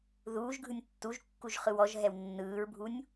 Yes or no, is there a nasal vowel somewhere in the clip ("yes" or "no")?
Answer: no